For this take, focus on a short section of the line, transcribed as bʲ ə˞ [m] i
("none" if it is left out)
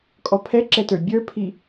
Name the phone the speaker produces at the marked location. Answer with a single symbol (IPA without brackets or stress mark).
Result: pʰ